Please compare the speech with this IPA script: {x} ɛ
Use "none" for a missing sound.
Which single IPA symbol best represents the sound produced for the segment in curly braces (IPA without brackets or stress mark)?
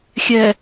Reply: xʲ